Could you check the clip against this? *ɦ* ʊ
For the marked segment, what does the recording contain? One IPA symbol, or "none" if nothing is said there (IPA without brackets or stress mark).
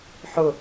ħ